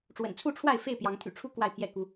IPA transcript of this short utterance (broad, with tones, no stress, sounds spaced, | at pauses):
ʈ͡ʂ w ə̰˨˩ n t͡sʰ u˥˨ ʈ͡ʂʰ w a˥˨ ɪ̯ f e˥˨ ɪ̯ p j ɑ˨˦ ŋ t̪ʰ y̰˨˩ ʈ͡ʂʰ u˦ k w a˥˨ ɪ̯ pʰ j ɛ˥˨ k u˦